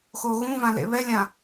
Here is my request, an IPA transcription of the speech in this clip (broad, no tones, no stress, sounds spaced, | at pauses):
x o ɣ ũ v ã l ḛ β ɛ lʲ ã